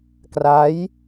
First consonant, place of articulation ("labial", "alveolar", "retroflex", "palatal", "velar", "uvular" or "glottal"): velar